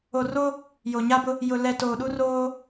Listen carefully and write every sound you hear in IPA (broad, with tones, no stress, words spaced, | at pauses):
o˨ ro˦ | jo˨ɲa˦bʊ˦ | jʊ˨lɛ˨ toː˨ɗu˦roː˦